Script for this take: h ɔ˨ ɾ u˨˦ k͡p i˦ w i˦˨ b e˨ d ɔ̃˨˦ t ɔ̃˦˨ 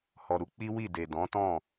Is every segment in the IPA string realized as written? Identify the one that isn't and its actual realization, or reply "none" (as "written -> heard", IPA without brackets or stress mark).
b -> d